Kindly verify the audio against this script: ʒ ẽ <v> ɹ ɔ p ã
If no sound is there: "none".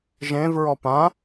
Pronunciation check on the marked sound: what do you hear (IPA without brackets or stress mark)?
v